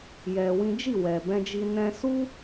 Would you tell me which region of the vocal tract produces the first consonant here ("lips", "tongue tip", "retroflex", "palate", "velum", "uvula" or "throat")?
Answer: palate